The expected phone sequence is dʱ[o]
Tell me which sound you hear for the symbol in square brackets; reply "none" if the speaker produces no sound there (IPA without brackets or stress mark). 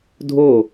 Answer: o